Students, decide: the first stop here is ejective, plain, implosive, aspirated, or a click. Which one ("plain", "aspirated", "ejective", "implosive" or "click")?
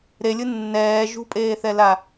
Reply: ejective